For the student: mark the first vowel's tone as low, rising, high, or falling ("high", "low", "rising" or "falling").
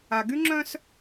low